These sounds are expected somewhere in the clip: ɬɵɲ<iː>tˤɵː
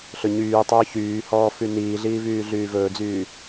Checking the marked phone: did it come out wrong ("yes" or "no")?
yes